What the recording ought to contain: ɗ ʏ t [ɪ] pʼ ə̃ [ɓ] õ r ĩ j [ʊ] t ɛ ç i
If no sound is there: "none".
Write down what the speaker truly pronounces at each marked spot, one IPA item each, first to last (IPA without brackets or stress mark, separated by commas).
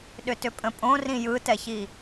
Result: ʏ, pʼ, ɯ